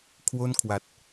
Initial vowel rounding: rounded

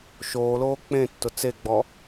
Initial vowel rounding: rounded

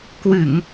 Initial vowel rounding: unrounded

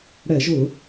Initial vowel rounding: unrounded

